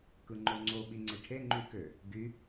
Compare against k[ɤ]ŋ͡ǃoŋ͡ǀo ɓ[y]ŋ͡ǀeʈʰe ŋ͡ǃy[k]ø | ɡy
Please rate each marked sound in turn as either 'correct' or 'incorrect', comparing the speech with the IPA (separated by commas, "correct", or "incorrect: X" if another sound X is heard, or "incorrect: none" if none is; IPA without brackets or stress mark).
incorrect: ɯ, incorrect: i, correct